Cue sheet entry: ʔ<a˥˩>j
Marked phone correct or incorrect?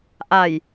incorrect